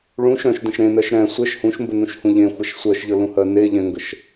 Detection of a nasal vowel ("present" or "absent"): present